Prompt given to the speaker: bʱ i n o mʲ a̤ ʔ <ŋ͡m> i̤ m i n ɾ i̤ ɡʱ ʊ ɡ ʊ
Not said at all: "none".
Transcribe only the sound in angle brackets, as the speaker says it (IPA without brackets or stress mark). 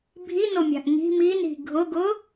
ŋ